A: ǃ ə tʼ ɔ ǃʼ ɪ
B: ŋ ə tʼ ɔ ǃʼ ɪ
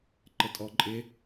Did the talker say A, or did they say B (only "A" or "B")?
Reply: A